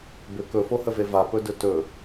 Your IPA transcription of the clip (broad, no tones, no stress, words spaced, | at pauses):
bʏ kɵfohəve vapɵdɵ tɵ